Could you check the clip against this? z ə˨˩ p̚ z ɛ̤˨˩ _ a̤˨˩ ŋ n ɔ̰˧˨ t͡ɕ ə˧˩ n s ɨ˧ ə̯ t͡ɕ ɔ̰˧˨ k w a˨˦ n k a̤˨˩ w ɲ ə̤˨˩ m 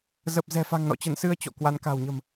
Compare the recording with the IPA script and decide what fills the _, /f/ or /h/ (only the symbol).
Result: f